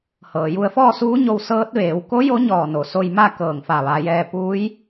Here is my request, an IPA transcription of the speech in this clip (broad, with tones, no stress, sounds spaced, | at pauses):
h ɤː˩ j u˧ ə̯ f ɔː˥˨ s uː˧˥ ɲ o˧ w s ɤː˧˥ t̚ ʋ eː˩˧ w k o˧˥ j o˧˥ ɲ ɔː˧˩ n o˩ s o˧ j m a˥˨ k ɤː˧˩ ŋ f a˧˩ ʋ a˩˧ j ɛː˧ p uː˧˥ j